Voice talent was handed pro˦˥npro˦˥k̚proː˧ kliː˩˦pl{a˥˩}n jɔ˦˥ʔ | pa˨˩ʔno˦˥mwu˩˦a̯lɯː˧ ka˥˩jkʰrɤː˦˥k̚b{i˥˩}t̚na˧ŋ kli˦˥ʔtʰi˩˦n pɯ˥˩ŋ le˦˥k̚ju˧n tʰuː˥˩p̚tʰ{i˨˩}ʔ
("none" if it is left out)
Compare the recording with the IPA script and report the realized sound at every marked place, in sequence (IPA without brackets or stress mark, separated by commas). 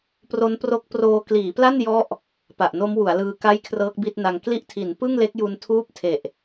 a˥˩, i˥˩, e˨˩